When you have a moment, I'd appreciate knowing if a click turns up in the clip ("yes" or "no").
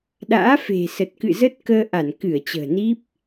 no